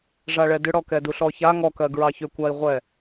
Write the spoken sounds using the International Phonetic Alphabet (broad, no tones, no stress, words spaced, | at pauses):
ʐaɭɛdʏɽɔ kɛduɬɔça ŋɔkɜɡ ɹɑçʏkʷai̯ʁʷɛ